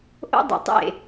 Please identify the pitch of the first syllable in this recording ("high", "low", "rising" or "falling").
high